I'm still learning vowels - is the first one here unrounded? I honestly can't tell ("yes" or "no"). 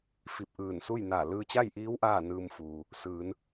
yes